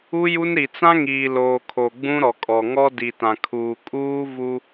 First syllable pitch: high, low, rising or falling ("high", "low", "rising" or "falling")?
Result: high